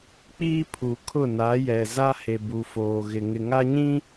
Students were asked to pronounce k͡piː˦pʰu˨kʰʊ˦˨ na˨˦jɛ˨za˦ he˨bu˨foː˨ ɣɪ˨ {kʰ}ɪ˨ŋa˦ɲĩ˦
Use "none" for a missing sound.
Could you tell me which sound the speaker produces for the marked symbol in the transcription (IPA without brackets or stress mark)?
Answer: ŋ